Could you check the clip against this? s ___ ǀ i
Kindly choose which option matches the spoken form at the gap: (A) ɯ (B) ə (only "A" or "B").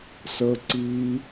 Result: B